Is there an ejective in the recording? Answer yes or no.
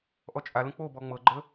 yes